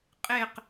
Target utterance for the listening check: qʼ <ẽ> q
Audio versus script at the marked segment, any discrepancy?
yes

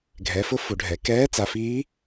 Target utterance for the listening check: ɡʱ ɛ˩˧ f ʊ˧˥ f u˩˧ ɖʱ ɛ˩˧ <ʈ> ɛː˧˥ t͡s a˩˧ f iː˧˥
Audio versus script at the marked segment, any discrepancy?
yes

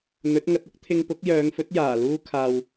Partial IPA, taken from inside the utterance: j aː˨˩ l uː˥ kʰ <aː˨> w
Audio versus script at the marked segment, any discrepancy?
no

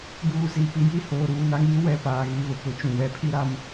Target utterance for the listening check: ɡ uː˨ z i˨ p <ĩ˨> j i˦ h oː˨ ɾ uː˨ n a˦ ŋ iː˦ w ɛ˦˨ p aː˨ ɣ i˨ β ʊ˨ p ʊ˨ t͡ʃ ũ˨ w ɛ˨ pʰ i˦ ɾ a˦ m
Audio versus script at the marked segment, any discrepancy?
yes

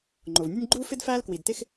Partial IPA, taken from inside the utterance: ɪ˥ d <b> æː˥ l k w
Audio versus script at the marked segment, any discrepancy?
yes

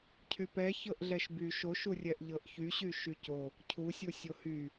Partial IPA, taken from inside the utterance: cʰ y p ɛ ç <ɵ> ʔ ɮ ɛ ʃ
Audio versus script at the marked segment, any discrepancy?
yes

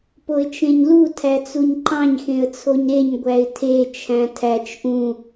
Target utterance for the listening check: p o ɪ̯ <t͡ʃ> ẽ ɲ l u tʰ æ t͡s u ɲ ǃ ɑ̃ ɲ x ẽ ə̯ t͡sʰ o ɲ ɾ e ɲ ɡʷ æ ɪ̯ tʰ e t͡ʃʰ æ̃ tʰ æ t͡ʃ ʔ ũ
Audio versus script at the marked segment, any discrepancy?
no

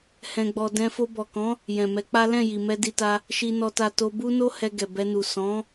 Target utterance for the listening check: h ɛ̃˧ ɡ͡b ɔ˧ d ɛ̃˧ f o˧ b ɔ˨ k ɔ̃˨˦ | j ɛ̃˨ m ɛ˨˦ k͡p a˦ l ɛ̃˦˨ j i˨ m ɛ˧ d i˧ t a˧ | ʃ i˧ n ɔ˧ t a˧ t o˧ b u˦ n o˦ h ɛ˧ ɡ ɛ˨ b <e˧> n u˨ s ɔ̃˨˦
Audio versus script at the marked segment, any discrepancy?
yes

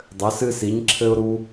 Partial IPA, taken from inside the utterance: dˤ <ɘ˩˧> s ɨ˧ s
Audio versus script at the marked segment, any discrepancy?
no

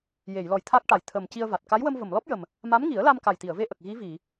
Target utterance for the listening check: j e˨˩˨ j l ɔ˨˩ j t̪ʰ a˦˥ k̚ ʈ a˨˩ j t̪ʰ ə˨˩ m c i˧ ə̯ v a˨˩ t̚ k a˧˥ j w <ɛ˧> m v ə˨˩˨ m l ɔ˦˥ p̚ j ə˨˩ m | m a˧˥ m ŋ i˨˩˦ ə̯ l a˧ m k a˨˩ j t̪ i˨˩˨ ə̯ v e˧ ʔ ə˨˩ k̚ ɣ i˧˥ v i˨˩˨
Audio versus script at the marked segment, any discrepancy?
yes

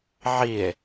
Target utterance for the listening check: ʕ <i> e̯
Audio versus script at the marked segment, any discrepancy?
no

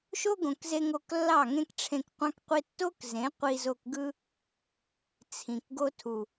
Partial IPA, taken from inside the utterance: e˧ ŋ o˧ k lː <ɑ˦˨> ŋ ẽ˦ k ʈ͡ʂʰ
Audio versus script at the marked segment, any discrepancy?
no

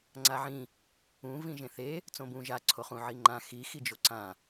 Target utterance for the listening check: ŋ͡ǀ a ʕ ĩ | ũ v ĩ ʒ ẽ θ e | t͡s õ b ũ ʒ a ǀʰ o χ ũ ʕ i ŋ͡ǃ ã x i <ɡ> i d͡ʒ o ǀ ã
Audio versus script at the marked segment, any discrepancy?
yes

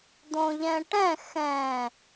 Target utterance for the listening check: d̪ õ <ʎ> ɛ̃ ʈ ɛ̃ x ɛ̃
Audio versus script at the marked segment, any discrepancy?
no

